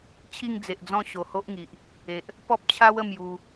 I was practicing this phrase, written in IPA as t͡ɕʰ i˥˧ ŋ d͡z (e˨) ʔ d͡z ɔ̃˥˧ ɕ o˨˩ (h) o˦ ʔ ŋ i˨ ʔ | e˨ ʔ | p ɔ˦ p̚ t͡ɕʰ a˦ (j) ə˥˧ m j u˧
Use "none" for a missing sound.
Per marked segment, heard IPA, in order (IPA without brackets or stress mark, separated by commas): e˨, h, w